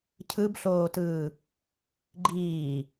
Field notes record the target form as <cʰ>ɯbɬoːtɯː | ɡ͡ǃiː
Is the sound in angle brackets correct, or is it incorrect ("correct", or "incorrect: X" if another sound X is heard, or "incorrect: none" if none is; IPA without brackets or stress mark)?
correct